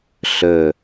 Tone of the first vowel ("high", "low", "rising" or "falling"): low